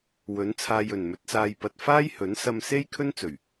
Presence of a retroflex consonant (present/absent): absent